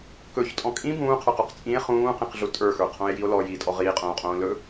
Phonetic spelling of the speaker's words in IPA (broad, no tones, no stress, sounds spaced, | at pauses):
k ɵ ç tʼ ɔ̃ kʼ ĩ b ũː qʰ ə˞ q o q t͡sʼ ĩ e̯ χ ũː q ĩ q ɮ u tʼ ə˞ x ə˞ qʰ õ e̯ j i o̯ l ɔ j iː tʼ ɔ ʁ iː qʼ õː qʼ õː l ɵ